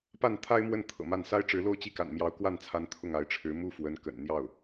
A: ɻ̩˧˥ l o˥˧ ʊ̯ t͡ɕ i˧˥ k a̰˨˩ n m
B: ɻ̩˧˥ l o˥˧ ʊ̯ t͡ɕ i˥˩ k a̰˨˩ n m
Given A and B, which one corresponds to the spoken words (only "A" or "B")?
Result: B